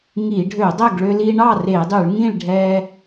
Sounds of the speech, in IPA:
ŋi˧˩˧ɖʱø˧˩˧dˤɛ˥˨ɡ ɭø˧li˧ɳɑ˥˨r e˧˩˧dˤy˧˩˧ɭŋĩ˥˨ɭɖʱɛ˧

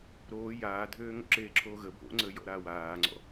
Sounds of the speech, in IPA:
ɾoː jaːdʱøː ŋo̰ǁeːǁʰoːɣə bʱo̰ŋ͡ǀəː jɔ̰ɾaːwaːŋ͡ǀɔ̰

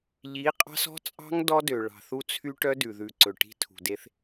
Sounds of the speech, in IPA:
ʎi˨˦ qʼɑ̤˦sɔ̤˦t͡sʼɑ̤˦ŋ dɔ˦dø˨ɭɑ̤˨ θu˦t͡sʰy˦ʈœ˦ dʉ˨ðʉ˨ ǀɵ˨ ʈi̤˦ tʰṳ˨de˦θ

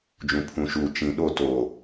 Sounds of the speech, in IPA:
d͡ʒũ˨pʰũ˨ʃuː˨ t͡ʃĩ˨ɗo˦˨ toː˨

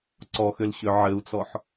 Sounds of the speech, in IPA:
ǀɔxʏlɕʏ ʕɘu̯t͡sɔħ

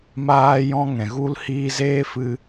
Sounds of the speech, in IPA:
maː˦jɔ̃˦ ŋɛ̃˨ɣu˦lhiː˦ zeː˦fɨ˧

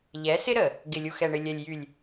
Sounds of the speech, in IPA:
ʎɛ˨˦sɪ˦ɾə˨ | ɡɪ˨lʲu˨xɛ˨ɳɪ˨ lʲɛ˨lʲjy˨lʲ

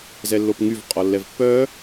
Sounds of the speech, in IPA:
zɛlːopŋyv qʼɔlːɛvpːœ

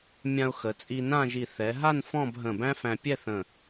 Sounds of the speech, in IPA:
mʲã˧ʊ̯xə˩˧ t͡sʼi˧nã˥˧ʒi˧˩ θɛ˩˧ɦa˥˧n fɔ̃˥˧b ɦə̃˧˩bæ̃˥fæ̃˧ pʲɛ˥˧θə̃˧˩

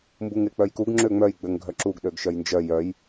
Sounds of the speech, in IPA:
mbuŋek͡pœjkuɡ ŋ͡ǁøŋ͡mœj ɡ͡bøŋɡʱœǁuɡ ɗøɡʃœjnd͡ʒœ jœj

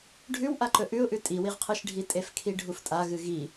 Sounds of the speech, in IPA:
ɖʱʉwʔaǃɵ ʔʉʊ̯ʔʉ tʼiwiʁqʰɨʃɖʱi tʼefkʰiɖʱuftʼa ɣɨɣi

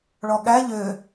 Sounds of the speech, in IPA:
ɭɔɠæ ʎø

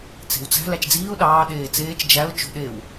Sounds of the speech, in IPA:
t͡se̤wt͡sæ̤ læt͡ʃd͡ziːʊ̯ ɗɑː ɗeːt͡seːt͡ʃ d͡ʒæʊ̯ t͡ʃo̤ɗew

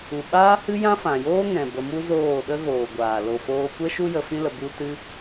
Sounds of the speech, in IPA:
u˨ɓaː˦ hɨ˦jã˦fã˨joː˦ ŋɛ̃˨ bə˧mu˦ zoː˦˨ ɗə˦ɣoː˨ɡʷaː˨ lo˨foː˧kʷɛ˦ ʃu˦jə˧ fĩ˦lə˧ bu˦ tɨ˦

